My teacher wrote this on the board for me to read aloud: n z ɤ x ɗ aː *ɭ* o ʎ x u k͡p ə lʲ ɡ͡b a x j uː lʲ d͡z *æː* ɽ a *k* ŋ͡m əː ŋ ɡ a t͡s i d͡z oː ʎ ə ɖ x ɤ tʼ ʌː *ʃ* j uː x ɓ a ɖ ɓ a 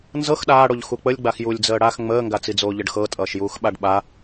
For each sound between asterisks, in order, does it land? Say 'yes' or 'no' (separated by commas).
no, no, no, yes